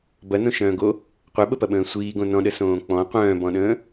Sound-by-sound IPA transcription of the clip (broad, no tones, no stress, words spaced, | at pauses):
bɐnõʃœ̃ːɡo | qʷeɓəpɐɓə̃ː sʷiːɡõ nɔ̃ɗəsõː k͡pɔ̃ qʷœ̃ːbɔ̃ɗə̃ː